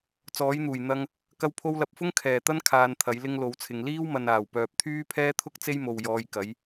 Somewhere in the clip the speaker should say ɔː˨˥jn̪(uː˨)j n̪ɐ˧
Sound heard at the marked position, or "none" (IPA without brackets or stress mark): uː˨˩